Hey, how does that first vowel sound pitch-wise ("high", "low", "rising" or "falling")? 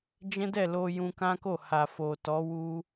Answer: high